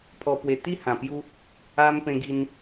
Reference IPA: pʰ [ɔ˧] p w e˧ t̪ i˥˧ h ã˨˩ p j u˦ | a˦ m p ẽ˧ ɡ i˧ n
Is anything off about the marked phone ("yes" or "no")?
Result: no